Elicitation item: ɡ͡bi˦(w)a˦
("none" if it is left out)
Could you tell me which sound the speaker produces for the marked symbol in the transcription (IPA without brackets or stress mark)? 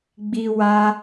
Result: w